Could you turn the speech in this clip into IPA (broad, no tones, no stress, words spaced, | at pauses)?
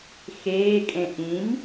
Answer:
xeːkʼẽ ʔĩm